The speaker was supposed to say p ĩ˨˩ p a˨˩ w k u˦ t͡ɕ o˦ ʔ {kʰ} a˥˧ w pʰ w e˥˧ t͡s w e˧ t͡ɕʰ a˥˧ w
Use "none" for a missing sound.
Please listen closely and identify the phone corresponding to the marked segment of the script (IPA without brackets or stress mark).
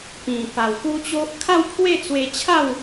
kʰ